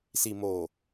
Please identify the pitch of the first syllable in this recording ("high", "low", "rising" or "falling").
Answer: low